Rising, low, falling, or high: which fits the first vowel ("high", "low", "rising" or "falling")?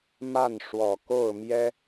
falling